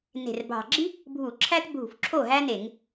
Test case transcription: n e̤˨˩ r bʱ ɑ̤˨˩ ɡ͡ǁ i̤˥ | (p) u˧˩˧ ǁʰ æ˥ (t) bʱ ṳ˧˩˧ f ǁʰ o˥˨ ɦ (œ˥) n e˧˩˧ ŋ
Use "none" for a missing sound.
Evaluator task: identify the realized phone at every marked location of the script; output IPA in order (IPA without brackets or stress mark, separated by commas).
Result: bʱ, t, æ˥